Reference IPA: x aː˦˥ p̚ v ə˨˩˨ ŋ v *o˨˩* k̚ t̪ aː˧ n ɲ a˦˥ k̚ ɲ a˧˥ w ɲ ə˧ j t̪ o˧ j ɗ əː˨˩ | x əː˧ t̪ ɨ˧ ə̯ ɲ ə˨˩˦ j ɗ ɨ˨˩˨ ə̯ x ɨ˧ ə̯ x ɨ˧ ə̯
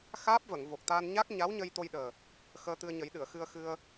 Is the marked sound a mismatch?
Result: no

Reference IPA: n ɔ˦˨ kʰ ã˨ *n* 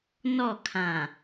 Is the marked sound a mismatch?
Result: yes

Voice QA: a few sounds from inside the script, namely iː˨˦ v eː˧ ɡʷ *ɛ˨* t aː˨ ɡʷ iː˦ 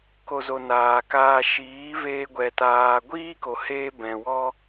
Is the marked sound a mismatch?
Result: no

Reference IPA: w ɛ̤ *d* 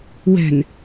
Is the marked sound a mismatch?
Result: yes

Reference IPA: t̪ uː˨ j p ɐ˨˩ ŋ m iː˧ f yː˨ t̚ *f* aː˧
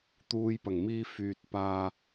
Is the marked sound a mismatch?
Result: yes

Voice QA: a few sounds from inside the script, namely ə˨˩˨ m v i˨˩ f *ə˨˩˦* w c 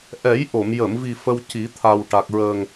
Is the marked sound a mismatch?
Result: yes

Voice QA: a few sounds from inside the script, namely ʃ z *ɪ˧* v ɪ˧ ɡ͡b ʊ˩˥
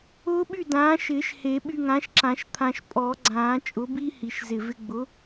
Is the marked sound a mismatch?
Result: yes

